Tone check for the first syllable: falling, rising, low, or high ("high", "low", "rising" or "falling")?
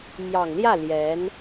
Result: low